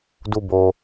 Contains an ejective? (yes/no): no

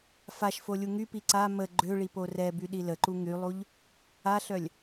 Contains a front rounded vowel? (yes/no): yes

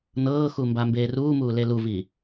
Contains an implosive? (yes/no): no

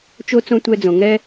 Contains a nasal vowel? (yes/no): yes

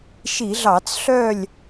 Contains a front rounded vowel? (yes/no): yes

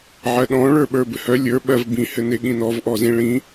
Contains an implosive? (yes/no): yes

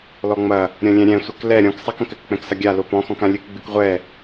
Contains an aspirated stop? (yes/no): no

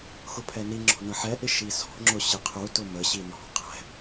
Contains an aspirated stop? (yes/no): yes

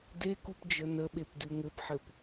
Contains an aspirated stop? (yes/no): no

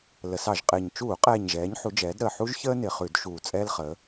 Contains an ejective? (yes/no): yes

